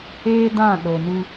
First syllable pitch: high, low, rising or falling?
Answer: high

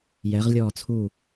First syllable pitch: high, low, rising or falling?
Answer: rising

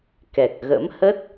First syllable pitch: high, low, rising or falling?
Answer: low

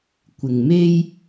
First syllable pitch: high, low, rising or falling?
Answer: low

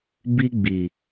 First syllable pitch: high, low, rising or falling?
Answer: high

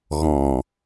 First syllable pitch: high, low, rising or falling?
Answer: low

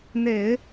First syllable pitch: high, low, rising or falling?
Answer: low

